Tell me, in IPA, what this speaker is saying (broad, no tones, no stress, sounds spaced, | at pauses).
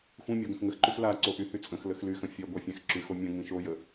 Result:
xʷ ĩ mʲ o ɡ ə̃ x ŋ ə x ǃ y x l a ǀ o ʔ y h y t͡sʼ ə̃ x l ə x l y x ə̃ fʲ œ ɡʷ æ fʲ æ̃ x ǁ y x o mʲ ə̃ ŋ ĩ ʃ o j ə